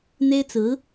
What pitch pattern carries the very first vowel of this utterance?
high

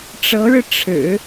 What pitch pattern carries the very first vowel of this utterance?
rising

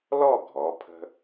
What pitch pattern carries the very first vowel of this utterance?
falling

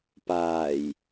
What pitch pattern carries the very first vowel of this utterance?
low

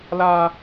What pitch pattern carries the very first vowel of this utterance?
high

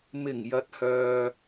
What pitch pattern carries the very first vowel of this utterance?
low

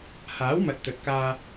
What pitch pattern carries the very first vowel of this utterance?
rising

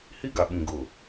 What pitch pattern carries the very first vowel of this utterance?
high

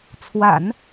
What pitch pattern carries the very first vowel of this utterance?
low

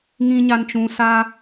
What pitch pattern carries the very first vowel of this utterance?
low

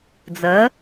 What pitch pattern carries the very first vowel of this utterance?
rising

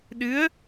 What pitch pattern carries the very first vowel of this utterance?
rising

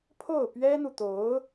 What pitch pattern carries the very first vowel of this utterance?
falling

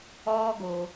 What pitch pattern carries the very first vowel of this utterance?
high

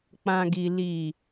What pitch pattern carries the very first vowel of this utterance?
low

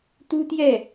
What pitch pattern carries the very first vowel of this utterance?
high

